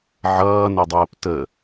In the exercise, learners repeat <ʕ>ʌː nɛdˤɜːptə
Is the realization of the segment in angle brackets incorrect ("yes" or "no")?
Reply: no